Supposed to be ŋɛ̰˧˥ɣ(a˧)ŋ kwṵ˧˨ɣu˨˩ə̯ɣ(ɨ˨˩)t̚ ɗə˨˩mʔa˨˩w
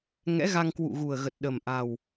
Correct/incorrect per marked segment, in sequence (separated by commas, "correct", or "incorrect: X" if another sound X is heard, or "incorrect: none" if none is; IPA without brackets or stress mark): correct, incorrect: ə˨˩